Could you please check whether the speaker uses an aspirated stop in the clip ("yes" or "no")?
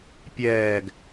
no